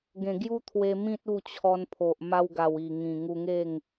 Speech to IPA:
ɡẽ˨˩ɡju˦t̪ʰwe˧ mĩ˦t̚u˥˧t͡ɕʰɔ˧npʰo˨ʔ ma˧wɡa˨˩w i˨˩ŋĩ˨˩ ŋu˧ŋe˥˧ŋ

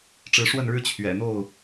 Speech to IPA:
ʈ͡ʂɻ̩˨˦ʂwə˥˨nɻɻ̩˦ t͡ɕʰɥɛ̰˨˩n̪o˥˨ʊ̯

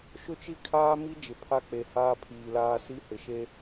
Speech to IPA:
ʃʊ˦t͡ʃi˦kʰaː˦ mi˦ d͡ʒɪ˨pʰa˦k͡pe˨ haː˦pʰiː˨laː˦ si˦hɪ˨ʃe˦

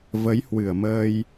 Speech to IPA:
və˨˦jhwɨ˧˩ə̯məː˧j

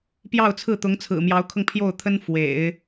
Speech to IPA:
pjɑ˥˧ʊ̯t͡sʰɹ̩˥˩t̪ʊ˧˥ŋ t͡sʰɹ̩˨˩mjɑ˧˥ʊ̯kʰɤ˧ŋ pʰjo˥˩ʊ̯t̪ʰə˥n fwḛ˨˩˦ɪ̯

